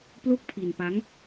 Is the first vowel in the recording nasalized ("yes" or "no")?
no